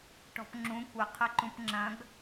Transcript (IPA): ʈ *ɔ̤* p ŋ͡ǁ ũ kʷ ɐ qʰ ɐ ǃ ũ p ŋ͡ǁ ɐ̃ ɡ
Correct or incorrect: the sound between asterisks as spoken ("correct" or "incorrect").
correct